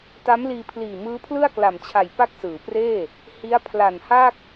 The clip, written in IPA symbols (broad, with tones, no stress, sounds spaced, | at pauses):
t a˦˥ m l iː˧ pʰ l iː˨˩ m ɯː˦˥ pʰ l ɯ˥˩ a̯ k l a˨˩ m t͡ɕʰ a˨˩ j p a˥˩ k̚ s ɯː˩˦ p r eː˥˩ | h i˦˥ a̯ pʰ l a˨˩ n h a˥˩ k̚